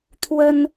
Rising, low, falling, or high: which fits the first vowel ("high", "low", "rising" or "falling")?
high